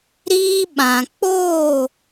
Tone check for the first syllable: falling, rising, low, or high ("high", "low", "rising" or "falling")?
high